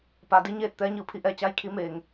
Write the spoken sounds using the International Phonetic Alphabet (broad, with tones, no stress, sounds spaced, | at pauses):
p a˩ d i˧ ɲ eː˧˩ t̚ t̪ ɛː˧˥ ɲ ɯː˧˩ pʰ i˩˧ ʔ ɛː˩ t͡ɕ a˧˥ j kʰ i˧˥ m eː˩ ŋ